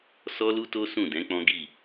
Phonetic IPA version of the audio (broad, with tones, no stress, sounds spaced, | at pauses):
s ɔ˦ l u˦ t o˦ s ũ˦˨ d ɛ̃˨˦ k͡p ɔ̃˦ ɡ i˦˨